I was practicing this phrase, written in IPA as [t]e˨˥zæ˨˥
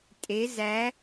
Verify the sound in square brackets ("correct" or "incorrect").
incorrect